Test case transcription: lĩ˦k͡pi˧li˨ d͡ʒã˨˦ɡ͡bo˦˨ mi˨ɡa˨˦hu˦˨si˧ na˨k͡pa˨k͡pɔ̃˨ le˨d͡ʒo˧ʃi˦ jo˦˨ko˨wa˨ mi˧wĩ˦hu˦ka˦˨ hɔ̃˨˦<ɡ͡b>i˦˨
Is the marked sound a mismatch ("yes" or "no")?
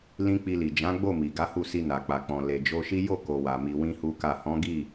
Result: yes